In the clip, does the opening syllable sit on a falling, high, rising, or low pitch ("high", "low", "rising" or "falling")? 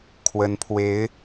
rising